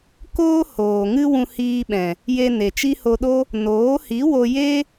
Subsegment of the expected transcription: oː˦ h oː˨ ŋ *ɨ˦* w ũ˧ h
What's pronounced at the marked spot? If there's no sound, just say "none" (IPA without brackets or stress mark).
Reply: ɨ˦